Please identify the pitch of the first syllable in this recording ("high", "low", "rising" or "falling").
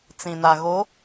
low